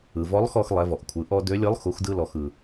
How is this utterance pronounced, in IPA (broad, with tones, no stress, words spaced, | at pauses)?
ɯ˩vɔ˧˥lˠxɔ˧x lˠɛ˩˧vɔ˩ʔkʷʰɯ˩˧ ʔɔ˧ dø˧˥lʲɯ˧˥lˠ xu˩˧xdɯ˧lɔ˩x ɯ˩